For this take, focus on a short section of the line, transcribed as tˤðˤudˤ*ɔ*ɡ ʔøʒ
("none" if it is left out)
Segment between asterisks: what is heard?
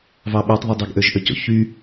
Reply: ɑ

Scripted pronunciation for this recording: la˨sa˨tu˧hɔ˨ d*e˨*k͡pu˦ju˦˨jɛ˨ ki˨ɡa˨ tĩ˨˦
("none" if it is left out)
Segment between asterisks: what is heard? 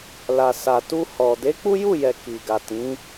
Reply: e˨˦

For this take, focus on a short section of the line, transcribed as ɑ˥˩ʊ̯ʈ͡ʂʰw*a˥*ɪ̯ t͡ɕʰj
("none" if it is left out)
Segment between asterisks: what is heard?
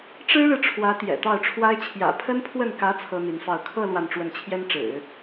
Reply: a˥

